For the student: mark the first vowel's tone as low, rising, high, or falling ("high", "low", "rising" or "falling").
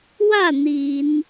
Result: falling